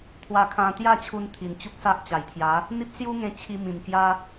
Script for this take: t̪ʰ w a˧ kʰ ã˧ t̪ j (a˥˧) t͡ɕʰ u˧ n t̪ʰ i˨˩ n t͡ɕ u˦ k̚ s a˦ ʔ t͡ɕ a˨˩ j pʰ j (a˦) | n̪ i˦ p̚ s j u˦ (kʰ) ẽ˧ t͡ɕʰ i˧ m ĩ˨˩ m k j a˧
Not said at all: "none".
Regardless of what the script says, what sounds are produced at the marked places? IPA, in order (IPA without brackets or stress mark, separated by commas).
a˥˧, a˨˦, ŋ